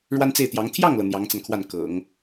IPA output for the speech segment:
ɻ w a˥ n t͡s e˥˩ ɪ̯ t̪ j ɑ˧˥ ŋ t̪ʰ j ɑ˥˩ ŋ l ɤ˩ n̪ j ɑ˧˥ ŋ t͡s a˧ n kʰ w a˥˩ n k ɤ̰˨˩˦ ŋ

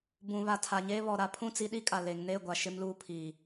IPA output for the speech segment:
b ũ˨ β a˨ tʰ a˨ ɲ eː˦ β ɔ˨ ɾ a˦ pʰ ũ˦˨ t͡s i˦ ɗ i˦ kʼ a˨ l e˨ ŋ n e˦˨ ɡʷ a˨ ʃ ɪ˦ m l uː˦ pʰ iː˨

